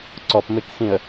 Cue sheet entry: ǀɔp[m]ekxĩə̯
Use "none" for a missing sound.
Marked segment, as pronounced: m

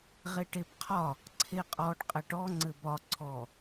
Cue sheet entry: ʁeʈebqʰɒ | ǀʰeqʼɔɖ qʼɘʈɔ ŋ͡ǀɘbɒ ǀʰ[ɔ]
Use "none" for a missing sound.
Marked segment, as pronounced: ɔ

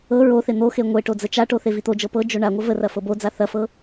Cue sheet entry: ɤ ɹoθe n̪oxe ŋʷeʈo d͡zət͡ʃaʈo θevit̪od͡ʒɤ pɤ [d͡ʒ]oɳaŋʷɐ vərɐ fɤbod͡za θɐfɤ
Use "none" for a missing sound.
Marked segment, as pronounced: d͡ʒ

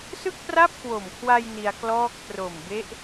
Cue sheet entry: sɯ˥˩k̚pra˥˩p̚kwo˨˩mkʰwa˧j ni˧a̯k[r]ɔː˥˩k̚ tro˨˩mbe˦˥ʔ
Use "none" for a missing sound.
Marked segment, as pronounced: l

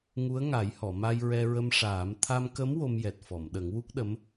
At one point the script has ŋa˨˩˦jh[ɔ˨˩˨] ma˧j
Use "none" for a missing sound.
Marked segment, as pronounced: ɔ˨˩˨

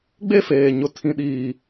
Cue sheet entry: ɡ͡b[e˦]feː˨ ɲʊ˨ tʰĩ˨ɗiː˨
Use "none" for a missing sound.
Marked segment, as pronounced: e˦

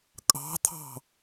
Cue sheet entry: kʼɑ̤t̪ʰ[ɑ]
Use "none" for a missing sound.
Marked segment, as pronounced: ɑ̤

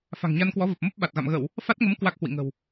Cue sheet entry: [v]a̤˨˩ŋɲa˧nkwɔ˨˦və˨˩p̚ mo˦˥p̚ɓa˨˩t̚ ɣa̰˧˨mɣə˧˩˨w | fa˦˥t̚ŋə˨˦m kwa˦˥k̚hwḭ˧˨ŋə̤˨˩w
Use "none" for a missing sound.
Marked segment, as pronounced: f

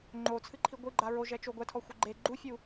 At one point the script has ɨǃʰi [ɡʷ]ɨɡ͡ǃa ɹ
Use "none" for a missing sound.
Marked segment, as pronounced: ɡʷ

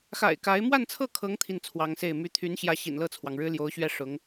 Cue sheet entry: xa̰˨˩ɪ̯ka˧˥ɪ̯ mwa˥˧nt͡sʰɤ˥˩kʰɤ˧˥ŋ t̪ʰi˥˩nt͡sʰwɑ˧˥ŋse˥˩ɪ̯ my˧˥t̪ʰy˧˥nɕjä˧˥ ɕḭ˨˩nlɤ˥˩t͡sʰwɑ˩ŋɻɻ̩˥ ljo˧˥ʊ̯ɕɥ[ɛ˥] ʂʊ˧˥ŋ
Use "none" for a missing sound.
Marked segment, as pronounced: ɛ˥˩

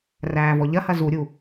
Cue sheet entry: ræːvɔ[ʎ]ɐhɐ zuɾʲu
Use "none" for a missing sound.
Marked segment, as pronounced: ʎ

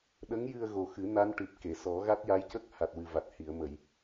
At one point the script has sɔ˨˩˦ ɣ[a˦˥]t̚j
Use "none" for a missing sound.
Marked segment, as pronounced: a˦˥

